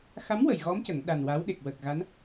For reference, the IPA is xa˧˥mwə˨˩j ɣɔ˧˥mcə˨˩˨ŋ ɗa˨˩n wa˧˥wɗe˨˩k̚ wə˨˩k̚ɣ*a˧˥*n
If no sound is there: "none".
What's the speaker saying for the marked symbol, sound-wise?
a˧˥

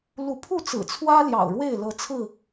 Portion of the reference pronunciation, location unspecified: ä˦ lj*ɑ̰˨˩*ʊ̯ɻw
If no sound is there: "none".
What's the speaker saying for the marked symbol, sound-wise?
ɑ̰˨˩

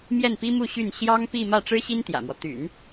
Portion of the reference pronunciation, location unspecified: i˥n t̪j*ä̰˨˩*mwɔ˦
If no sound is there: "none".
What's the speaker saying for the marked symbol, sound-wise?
ä̰˨˩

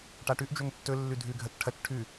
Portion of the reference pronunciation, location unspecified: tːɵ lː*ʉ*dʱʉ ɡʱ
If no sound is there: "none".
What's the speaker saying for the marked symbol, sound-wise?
ʉ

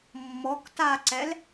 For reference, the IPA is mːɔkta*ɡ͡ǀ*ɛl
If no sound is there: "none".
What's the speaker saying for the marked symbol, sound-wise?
ǀ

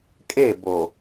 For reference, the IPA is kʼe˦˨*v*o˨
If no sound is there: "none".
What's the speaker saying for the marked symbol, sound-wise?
b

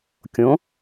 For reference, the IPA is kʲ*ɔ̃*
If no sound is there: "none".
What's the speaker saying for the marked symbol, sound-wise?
õ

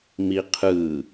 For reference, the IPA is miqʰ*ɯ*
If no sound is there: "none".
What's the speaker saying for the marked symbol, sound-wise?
ɯ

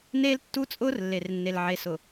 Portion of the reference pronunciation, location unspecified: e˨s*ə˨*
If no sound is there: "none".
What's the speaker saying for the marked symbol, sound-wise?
ʊ˨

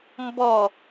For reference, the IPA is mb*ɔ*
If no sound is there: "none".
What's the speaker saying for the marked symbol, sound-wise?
ɔ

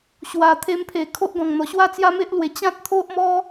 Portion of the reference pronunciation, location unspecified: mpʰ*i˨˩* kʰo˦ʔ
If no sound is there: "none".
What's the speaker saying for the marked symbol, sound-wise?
e˨˩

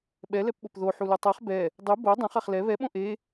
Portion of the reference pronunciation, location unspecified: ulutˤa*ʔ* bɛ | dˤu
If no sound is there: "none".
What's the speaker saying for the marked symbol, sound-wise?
χ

